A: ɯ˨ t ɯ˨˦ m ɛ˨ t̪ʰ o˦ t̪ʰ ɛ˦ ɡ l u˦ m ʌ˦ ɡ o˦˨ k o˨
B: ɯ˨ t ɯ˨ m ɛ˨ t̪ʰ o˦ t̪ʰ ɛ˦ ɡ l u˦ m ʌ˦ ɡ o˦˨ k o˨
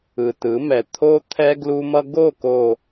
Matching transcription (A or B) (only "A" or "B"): A